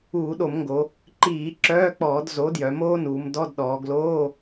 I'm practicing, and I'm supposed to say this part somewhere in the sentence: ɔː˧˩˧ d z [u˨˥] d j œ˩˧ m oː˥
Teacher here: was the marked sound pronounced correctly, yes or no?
no